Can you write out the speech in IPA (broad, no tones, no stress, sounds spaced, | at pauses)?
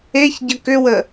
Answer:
e ç ɟ ə k ʏ w ə